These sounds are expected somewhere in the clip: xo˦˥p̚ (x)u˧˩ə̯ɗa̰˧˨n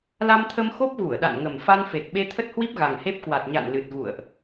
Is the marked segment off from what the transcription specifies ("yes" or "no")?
yes